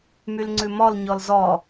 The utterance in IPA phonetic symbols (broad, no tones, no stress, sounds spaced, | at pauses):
m y l ŋ͡ǀ ʉ m ɔ l ɲ ɔ l z ɔ